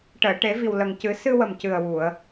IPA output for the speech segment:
ʈəː˨˩˨ʈe˨˩˦vi˨˩w lə˨˩ŋcɨ˨˩˦ sɨ˧wə˨˩mcɨ˨˩ə̯wu˨˩˨ə̯

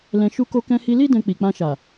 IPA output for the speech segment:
lɛ̃˧ʃu˦ ko˧kɛ̃˧hi˧li˦ dɛ̃˧k͡pi˨k͡pã˧ʃa˨

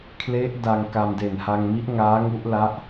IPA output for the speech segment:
kʰle˦˥ʔ da˧ŋka˧m de˨˩nha˧ŋmi˦˥ʔŋaː˦˥ ŋu˦˥ʔla˦˥ʔ

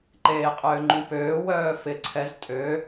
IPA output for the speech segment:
ǃeːqʼøːŋ͡ǃũpøː wœːfɪ ǀʰɛz tʼø

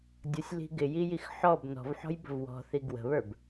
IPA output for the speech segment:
dʲʌsʲli̤ ɡɪjijix ħɔb nɔ̤vħɔ̤jbə̤v wɔ̤θi ɡwə̤βə˞b

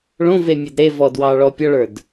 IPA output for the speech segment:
ɭõvemʲəd ɾevɔdwɑɭɔ pʲɒɭə˞d

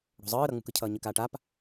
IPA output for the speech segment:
ɽo̤zˤɯː ɾʌŋ͡mṳkɯcʰʌː ɲɯkaːʈap

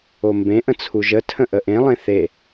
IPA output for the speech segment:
ombẽ ʔə̃t͡sʰuʒə tʰə̃ʔəʔẽ lˠẽθe

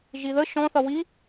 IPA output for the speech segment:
ʒiðə ʃɔ̃ θʌwi

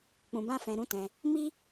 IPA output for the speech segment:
k͡pũ˧bã˦ fɛ̃˧ɾũ˦tɛ̃˧ | mi˦

